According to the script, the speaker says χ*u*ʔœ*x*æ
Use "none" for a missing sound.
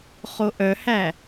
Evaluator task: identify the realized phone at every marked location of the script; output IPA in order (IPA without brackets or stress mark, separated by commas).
o, h